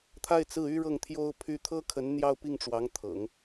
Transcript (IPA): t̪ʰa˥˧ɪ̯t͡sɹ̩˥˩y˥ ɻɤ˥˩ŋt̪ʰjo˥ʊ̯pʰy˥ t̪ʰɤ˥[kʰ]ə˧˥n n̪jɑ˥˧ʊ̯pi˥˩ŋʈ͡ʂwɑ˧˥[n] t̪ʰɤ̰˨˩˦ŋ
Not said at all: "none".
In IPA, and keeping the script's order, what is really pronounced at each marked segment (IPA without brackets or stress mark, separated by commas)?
kʰ, ŋ